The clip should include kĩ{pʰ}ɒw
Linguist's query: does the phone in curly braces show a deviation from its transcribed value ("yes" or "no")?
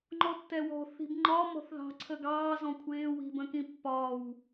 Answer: yes